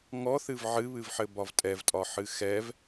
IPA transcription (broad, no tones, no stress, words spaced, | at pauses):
ŋɔθɨv ʕɨβɨvħɘbɒv tʼɛvtʼɒħɨ xɛv